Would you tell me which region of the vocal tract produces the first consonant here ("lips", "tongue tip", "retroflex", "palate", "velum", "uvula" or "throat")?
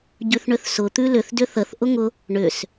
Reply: palate